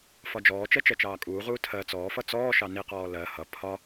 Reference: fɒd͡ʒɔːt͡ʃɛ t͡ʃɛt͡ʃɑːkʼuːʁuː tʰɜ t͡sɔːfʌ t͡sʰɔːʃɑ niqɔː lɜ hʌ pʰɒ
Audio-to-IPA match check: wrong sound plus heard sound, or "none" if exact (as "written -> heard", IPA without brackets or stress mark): t͡sʰ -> t͡s